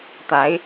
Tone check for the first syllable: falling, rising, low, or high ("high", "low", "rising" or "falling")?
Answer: rising